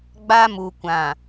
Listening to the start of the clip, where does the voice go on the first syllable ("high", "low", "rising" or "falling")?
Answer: high